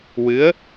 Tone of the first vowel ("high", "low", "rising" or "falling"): rising